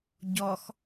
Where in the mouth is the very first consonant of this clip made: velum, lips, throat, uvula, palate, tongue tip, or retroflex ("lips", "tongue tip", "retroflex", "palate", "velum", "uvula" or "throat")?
palate